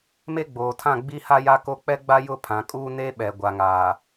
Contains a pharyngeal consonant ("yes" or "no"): no